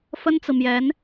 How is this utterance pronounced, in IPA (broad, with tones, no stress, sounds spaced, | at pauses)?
f ə˥ n t͡s ɹ̩˨ m j ɛ˧˥ n